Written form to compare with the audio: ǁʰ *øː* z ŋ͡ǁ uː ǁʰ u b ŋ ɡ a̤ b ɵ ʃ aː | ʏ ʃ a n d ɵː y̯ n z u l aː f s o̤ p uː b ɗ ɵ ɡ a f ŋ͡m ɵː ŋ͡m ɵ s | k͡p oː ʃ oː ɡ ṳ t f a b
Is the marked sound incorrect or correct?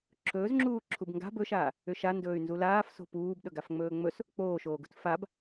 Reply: incorrect